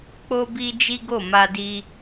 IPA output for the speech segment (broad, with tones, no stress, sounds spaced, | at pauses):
k͡p o˧ b i˧ d͡ʒ i˦ ɡ o˦˨ m a˧ d i˧